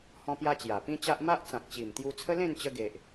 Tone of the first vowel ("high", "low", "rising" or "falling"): high